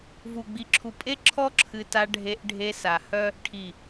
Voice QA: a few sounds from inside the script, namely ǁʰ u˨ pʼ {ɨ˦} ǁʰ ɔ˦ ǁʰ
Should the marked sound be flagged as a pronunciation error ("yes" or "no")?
yes